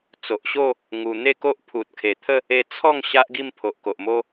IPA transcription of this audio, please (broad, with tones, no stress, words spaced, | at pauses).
t͡so˨ʔɕo˥˧ | ŋu˧ n̪e˥˧ko˦ʔ pʰu˨t̚kʰe˨˩ t̪ʰə˥˧ | e˧t͡sʰɔ˥˧ŋ ɕa˦ʔɡi˥˧mpʰo˨ʔ ko˨ʔmo˦